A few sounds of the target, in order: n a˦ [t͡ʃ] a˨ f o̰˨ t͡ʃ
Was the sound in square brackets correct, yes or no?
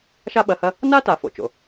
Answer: no